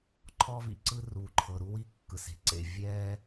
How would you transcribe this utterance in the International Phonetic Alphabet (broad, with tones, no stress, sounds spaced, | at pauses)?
ǃʰ ɔ˥ v ḭ˩ ǀ ɯ˥ r u˩ ǃʰ ɤ˩ ɾ u˥ w i˥ kː ɯ˩ s e̤˩ ǀ ḛ˩ vʲ ɛː˥